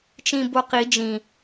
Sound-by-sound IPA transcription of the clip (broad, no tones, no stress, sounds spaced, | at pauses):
t͡ʃ ĩ b o q i d͡ʒ ĩ